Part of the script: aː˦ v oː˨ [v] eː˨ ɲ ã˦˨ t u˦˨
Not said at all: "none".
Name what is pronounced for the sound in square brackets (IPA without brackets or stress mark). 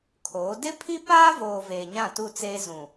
v